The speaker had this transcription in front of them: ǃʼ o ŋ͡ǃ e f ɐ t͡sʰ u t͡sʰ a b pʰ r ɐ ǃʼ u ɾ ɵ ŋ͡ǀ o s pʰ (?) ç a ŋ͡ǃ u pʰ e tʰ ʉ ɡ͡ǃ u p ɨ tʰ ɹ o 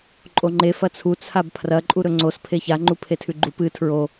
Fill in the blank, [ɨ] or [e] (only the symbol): e